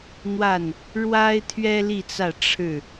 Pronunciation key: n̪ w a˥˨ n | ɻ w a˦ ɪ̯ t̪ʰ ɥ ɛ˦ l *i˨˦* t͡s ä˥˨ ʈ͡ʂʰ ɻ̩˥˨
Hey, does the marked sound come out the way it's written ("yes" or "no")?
no